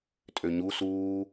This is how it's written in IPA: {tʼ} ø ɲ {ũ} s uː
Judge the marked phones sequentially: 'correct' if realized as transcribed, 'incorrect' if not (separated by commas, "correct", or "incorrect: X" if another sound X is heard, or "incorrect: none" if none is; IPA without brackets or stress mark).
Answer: correct, incorrect: u